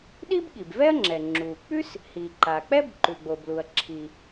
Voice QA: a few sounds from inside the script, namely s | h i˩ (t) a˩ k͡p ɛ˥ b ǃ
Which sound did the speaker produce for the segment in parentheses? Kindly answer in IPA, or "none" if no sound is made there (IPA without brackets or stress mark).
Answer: ǃ